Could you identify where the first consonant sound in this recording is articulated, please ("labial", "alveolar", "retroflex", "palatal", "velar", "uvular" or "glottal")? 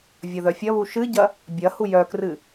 labial